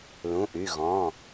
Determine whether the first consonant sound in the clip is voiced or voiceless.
voiced